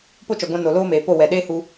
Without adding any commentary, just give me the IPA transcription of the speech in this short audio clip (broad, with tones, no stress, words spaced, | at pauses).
po˦t͡ʃɔ˨ɡʷã˧ no˨loː˦meː˨po˦˨ wɛ˨ɗeː˦hu˧